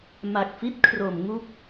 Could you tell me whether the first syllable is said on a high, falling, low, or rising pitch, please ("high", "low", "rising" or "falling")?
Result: low